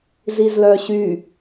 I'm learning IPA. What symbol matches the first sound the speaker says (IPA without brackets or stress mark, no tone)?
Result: z